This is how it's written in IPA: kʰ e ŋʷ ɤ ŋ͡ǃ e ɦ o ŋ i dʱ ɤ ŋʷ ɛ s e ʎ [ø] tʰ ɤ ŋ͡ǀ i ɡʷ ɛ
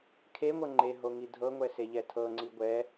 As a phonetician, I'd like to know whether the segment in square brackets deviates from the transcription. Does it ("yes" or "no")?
yes